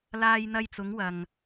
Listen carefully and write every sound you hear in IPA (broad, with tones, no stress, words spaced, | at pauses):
laː˧jn̪ɐ˧jt͡sʊ˨˧ŋ wɐ˨ŋ